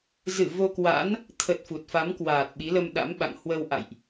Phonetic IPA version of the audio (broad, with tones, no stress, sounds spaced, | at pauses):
z ɨ˧˩ v o˧ k w a̰˧˥ n | t̪ʰ ə˨˩ t̚ f u˨˩ t̚ f a˨˦ m k w aː˨˩ t̚ ɓ i˨˦ l ə˧ m ɗ a̰˧˥ m ɓ a̰˧˨ ŋ h w ə˧ w ʔ a̰˧˨ j ʔ